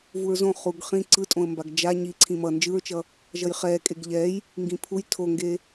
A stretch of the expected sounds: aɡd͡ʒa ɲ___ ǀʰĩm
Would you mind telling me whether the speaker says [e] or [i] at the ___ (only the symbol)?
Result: i